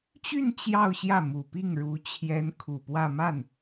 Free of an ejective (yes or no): yes